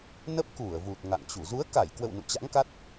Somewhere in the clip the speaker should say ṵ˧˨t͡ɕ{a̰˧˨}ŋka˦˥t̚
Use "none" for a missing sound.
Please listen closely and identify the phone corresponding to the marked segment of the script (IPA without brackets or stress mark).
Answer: a̰˧˥